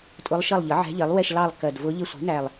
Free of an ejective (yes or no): no